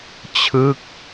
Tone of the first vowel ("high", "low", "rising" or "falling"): falling